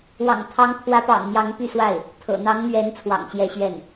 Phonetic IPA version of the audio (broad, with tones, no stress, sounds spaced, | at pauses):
w ɑ̰˨˩ ŋ t̪ʰ ɑ˧˥ ŋ pʰ w ä˧˥ p ɑ̰˨˩ ŋ m j ɑ˧˥ ŋ p y˥˧ s w a˥˩ ɪ̯ | t̪ʰ ɤ̰˨˩ n̪ ɑ˧˥ ŋ n̪ ɥ ɛ˧˥ n t͡sʰ w ɑ̰˨˩ ŋ ɕ j ɛ˥˧ ɕ ɥ ɛ˥˩ n